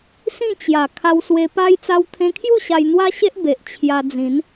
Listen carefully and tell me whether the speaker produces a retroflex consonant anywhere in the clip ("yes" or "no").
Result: no